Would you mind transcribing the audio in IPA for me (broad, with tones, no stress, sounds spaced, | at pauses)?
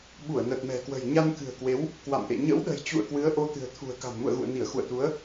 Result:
ɓ u˧˩ ə̯ n ə˨˩ t̚ m ɛ̤˨˩ k w ə̤˨˩ j ɲ a˧ n k ɨ̤˨˩ ə̯ k w e˨˦ w | k w a̰˧˨ m ʔ ḛ˧˨ ɲ ə̰˧˥ w ɗ ə̤˨˩ j t͡ɕ ṵ˧˨ ə̯ k w ɨ˨˦ ə̯ ʔ o˧ t̪ ɨ̤˨˩ ə̯ t̪ʰ ṳ˨˩ ə̯ k a̤˨˩ n m ṵ˧˨ ə̯ ɣ ṵ˧˨ ə̯ n i˧˩ ə̯ x ṵ˧˨ ə̯ t̪ u˨˦ ə̯